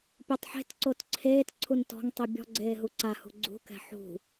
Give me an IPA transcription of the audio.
pʲotˤħe̤tǀot ǀʰeːtǀʰun tɔ̤ŋtˤi bʲɔ̤ ɡ͡ǀeːɦuǀahṳ ɡ͡ǀṳkɛ̤ ħṳ

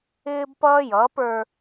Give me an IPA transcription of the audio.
ɪː˦bpʌː˦jʌː˨˦p ə˞˦

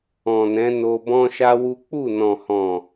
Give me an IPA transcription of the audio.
ɔ̃˨nɛ̃˨˦ no˧bɔ̃˦ʃa˦wu˦ k͡pu˦˨nɔ̃˨hɔ̃˨

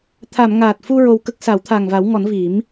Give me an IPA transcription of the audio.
t̪ʰa˨˩˨m ŋaː˨˩t̚fu˧ ɹo˧wkə˦˥k̚ sa˨˩˦wt̪ʰaː˨˩ŋva˨˩˦wŋɔ˨˩˦n vi˨˩˦m

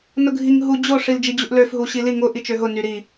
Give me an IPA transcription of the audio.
nʊɡʱiŋ ɦu d͡ʑo ʂild͡ʒid͡ʑuʔløf ɦuɕili ŋʊ ʔit͡ʃøɦʊ nyɾi

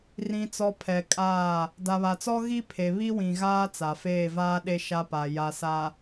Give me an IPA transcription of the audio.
rĩ˨t͡sɔ˨ pʰɛ˨kʼaː˦˨ | da˨βa˨t͡sɔ˦ɣi˦ pʰe˨βi˦wĩ˨ɣaː˦ t͡sa˨feː˦˨vaː˦ɗe˦ ʃa˦pa˨ ja˨sa˨

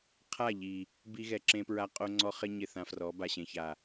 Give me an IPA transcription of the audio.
qʰa˦˨ʎi˨ | bi˧ɣɛ˨ǁẽ˧pɹa˧ qʼo˧ŋ͡ǀɔ˧ χɪ˦ ɲɪ˦˨θã˧frɔ˨˦ ba˨ɕẽ˨ça˨

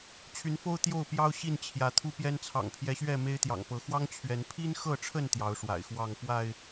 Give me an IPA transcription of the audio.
t͡ɕʰy˨˦nfo˦ʊ̯ t̪jo˥˨ʊ̯pjɑ˦ʊ̯ ɕi˥˨nt͡ɕʰjä˨˦ t̪ʰu˦pjɛ˦n t͡sʰɑ̰˨˩ŋpʰjɛ˨˦ɕɥɛ˥˨ me˦ɪ̯t̪jɑ̰˨˩ŋpɤ˨˦ xwɑ˦ŋt͡ɕʰɥɛ˨˦n pʰi˦nxɤ˥˨ʈ͡ʂʰə˥˨n t̪jɑ˨˦ʊ̯ʂwa̰˨˩ɪ̯xwɑ˥˨ŋ pwa˥˨ɪ̯

